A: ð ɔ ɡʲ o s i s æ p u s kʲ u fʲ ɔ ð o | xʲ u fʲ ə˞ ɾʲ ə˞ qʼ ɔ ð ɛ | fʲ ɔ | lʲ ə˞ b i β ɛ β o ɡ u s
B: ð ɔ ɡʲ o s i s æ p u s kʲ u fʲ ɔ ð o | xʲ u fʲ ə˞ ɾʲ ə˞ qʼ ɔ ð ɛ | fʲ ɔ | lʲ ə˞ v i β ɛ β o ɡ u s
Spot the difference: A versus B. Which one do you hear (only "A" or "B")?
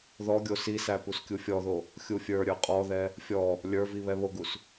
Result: B